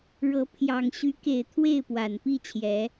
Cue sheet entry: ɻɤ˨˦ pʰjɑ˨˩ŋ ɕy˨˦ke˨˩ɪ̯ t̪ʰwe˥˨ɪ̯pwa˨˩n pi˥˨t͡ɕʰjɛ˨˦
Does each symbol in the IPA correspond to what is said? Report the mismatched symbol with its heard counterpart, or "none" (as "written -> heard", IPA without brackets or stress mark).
none